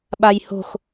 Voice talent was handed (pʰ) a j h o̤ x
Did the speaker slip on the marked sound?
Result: yes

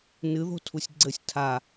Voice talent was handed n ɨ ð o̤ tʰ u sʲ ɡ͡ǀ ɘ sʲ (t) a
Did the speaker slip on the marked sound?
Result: yes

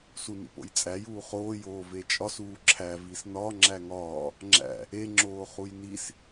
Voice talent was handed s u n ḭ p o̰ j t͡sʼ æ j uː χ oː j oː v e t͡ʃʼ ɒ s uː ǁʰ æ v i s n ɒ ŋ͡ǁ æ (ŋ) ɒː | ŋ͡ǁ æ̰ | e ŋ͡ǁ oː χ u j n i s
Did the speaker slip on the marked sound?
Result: no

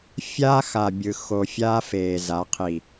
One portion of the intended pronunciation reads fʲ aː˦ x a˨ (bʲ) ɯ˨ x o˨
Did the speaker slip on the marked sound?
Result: no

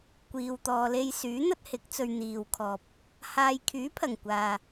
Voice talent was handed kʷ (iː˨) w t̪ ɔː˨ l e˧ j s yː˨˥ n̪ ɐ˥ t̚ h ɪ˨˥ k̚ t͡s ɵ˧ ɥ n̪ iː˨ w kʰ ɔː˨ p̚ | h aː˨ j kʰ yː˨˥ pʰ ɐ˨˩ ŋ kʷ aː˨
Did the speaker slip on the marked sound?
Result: no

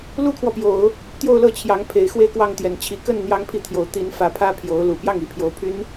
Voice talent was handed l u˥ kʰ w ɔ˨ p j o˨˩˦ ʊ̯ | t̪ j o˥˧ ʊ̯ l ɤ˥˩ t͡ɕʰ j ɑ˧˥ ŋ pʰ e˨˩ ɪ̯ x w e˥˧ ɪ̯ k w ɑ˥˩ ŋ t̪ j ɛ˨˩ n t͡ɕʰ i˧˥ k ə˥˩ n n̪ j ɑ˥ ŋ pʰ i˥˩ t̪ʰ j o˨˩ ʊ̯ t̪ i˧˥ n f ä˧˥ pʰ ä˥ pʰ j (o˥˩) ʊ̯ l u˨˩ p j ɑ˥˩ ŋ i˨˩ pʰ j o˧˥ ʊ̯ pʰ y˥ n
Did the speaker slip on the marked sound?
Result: yes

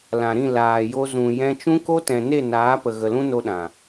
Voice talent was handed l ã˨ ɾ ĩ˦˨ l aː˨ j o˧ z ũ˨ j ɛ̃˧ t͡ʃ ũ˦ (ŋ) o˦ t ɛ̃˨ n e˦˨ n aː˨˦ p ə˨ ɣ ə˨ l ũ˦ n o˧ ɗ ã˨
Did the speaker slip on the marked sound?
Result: yes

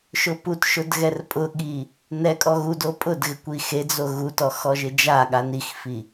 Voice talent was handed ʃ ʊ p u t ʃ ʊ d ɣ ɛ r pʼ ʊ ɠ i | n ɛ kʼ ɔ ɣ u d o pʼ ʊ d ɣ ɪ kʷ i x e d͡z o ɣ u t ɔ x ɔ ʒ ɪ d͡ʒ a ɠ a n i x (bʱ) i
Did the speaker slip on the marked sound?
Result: yes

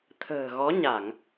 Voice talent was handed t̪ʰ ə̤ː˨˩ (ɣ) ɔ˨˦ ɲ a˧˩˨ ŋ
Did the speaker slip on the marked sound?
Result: no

